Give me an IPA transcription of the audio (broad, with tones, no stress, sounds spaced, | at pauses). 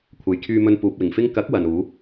kʷʰ ɐ˨ j kʰ yː˧ m ɵ˧ n p uː˨ p̚ w ɪ˨˩ ŋ f ɪ˥ ŋ k ɐ˨˥ k̚ w ɐ˨ n uː˨˥